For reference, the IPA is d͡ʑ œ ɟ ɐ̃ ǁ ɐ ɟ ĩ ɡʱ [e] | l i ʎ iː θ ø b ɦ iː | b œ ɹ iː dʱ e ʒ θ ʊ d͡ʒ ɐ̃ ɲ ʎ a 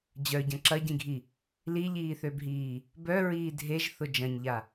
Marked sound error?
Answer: yes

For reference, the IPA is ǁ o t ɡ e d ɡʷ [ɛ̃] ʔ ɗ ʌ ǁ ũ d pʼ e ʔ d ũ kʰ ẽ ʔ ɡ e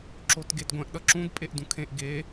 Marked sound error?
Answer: no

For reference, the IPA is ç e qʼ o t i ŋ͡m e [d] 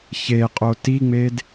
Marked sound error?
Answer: no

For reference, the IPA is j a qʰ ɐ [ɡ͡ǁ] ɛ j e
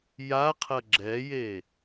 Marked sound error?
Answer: no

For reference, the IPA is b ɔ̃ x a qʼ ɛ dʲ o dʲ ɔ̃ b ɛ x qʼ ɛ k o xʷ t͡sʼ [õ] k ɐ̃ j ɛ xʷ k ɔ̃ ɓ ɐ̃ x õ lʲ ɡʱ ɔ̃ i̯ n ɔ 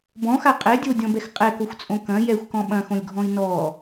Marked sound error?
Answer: no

